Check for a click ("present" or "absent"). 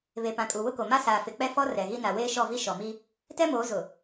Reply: absent